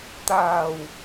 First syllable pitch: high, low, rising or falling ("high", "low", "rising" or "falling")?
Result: low